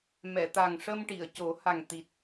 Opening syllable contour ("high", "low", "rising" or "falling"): low